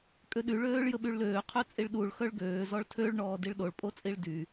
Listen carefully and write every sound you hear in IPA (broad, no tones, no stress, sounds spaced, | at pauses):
kʼ ø ɗ y ɭ øː ɭ j ə ɓ y ɭ l øː qʰ ø t͡sʼ i ɭ ɗ u ɭ x œ ɭ ɡ øː z ɔ ɭ tʰ ø ɭ ɳ ɔː d i ɭ ɗ o ɭ pʼ o t͡sʼ i ɭ d y